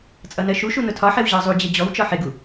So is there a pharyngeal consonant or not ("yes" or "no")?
yes